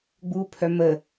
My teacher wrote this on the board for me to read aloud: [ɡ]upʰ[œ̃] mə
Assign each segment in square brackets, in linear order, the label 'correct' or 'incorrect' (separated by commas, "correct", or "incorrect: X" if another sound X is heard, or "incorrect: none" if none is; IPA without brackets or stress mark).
incorrect: ɡ͡b, incorrect: œ